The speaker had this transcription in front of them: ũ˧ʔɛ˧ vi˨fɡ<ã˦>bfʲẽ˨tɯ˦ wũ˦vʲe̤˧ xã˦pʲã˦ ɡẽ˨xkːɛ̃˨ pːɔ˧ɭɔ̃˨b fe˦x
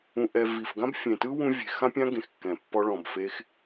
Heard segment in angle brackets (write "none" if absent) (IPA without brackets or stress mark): ã˦